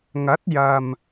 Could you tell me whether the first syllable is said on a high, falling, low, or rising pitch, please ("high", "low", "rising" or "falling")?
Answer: rising